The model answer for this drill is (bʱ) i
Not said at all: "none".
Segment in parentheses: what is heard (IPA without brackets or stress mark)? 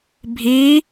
bʱ